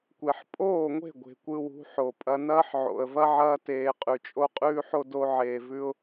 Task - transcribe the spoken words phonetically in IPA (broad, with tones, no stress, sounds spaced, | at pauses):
kʷ e˨ ħ pʼ oː˦˨ ŋʷ e̤˦˨ ɡʷ e̤˨ kʷ ɯ˧ w ṳ˨˦ ħ o˨ pʼ ɐ˧ n ɐː˦ ħ ʕ o̰˨ ə̯ v ɐ˦ ʕ ɐː˧ t eː˨ qʼ ʉ˨ t͡ʃʼ o˦ qʼ ʉː˦ ħ o˦ d o˧ ʕ eː˨ v ʉ˧ ʊ̯